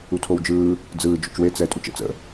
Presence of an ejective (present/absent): present